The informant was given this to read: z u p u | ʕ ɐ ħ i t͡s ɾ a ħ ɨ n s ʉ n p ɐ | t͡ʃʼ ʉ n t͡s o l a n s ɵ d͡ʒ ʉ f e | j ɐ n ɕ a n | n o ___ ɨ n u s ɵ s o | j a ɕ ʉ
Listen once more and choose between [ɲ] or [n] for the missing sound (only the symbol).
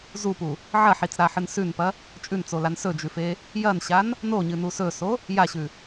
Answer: ɲ